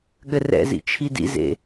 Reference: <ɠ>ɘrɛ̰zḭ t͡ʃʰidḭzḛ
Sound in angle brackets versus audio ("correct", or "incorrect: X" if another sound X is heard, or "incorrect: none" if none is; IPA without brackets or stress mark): correct